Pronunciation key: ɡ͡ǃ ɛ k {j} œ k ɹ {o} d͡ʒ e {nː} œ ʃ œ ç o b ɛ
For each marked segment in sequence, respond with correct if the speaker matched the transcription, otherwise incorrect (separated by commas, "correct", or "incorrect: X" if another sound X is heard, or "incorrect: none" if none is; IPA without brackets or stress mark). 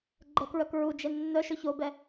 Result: incorrect: ɹ, incorrect: u, correct